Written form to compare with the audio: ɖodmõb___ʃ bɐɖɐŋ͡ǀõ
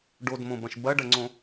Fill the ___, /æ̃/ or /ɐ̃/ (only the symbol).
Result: ɐ̃